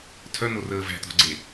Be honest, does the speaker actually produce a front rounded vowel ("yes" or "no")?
yes